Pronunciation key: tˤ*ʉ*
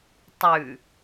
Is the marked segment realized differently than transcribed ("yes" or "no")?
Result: no